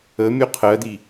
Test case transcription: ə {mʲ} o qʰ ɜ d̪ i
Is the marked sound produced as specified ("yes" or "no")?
yes